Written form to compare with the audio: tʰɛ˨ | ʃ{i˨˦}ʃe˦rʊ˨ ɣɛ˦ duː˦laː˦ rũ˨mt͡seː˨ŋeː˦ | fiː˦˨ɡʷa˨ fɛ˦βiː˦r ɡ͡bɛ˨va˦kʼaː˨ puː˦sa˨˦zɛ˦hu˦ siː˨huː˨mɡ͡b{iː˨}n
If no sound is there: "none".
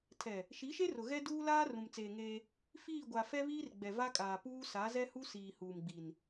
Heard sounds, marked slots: i˨˦, i˨

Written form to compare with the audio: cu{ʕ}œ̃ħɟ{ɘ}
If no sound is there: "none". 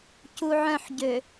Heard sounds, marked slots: ʕ, ø

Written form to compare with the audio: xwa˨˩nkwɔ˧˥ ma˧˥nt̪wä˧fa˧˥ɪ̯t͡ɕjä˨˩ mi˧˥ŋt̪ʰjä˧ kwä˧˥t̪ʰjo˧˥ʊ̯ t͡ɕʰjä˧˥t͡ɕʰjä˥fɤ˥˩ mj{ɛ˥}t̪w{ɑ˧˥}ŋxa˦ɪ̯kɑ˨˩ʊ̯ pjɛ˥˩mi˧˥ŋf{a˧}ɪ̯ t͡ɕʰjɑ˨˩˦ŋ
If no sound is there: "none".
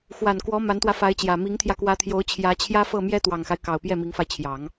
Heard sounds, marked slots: ɛ˥, ɑ˨˩, a˧

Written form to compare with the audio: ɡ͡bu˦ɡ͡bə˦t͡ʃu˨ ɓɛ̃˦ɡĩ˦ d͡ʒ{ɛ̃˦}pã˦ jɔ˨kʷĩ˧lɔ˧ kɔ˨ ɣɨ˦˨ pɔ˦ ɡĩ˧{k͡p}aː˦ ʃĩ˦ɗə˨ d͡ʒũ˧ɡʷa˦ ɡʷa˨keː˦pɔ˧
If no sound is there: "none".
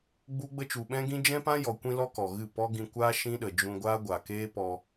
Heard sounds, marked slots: ɛ̃˦, kʷ

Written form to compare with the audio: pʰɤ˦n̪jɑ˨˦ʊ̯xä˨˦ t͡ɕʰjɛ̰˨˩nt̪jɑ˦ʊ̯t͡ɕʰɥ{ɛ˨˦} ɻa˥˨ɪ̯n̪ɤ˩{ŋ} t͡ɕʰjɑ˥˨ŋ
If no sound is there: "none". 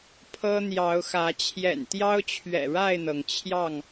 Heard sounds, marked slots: ɛ̰˨˩, ŋ

